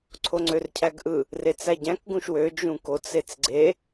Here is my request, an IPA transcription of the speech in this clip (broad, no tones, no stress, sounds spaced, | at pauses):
ǀʰ o ŋ͡ǀ ø r cʰ æ ɡ ʔ ɯ | r e t͡s æ ɟ æ̃ k ɡ ũ ʃ w ø d͡ʒ ũ k o t͡s e t͡s ɡ͡ǀ e